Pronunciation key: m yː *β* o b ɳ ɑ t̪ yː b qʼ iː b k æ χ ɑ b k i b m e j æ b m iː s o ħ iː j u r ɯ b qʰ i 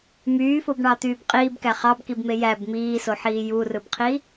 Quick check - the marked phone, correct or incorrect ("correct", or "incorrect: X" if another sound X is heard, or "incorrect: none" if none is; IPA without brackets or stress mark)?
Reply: incorrect: f